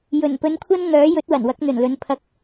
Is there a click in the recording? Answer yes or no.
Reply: no